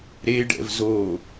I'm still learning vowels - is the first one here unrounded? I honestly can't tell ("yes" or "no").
yes